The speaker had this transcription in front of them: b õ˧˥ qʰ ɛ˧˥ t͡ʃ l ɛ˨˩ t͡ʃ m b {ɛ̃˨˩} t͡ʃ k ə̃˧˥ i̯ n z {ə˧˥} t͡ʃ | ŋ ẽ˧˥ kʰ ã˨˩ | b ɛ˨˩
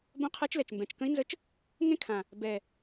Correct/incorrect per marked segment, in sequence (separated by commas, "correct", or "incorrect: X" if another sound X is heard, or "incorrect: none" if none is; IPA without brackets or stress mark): correct, correct